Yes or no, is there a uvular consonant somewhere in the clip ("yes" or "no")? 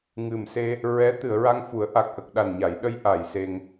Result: no